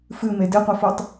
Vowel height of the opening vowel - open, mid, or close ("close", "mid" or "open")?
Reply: close